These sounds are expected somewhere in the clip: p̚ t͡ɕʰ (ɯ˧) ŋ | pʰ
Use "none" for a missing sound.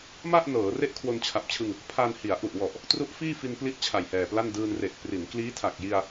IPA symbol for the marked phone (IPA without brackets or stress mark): ɯ˧